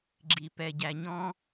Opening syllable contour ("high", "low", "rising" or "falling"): low